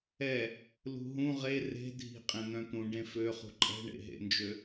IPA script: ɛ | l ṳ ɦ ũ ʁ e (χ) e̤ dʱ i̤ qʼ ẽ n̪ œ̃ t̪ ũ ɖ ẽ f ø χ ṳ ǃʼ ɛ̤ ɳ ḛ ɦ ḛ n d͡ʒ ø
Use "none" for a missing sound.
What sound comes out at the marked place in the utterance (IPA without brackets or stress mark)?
r